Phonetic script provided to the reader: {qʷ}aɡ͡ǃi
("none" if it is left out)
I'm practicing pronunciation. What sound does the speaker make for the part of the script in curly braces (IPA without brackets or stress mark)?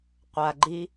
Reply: qʷ